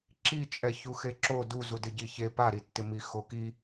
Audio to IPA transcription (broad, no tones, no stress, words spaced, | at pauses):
ǁi t͡ʃʼɛçuxeǁo du zudɪɟiçe paɾitːɪmi xoki